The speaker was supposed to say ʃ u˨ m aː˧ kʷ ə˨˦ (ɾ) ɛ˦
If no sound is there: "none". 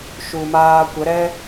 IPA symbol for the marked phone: ɾ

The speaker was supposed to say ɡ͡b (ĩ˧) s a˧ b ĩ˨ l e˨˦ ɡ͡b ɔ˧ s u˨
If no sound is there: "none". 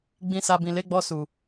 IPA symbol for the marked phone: ĩ˧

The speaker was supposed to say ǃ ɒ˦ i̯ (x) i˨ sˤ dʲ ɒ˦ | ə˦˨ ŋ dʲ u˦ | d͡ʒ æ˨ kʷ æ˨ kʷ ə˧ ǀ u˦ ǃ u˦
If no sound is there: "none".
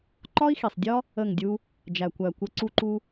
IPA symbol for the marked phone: x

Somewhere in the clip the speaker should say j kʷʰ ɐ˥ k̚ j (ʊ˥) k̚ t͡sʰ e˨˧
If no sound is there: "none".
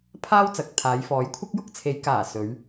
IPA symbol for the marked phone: ʊ˥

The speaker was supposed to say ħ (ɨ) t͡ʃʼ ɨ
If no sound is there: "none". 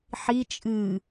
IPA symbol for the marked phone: i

